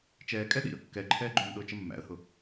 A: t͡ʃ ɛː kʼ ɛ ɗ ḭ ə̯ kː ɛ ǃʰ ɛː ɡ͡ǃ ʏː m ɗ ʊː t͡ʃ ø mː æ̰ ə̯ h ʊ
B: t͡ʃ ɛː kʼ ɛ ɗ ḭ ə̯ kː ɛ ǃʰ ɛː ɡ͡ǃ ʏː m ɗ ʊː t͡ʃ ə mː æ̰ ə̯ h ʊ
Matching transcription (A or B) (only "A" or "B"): B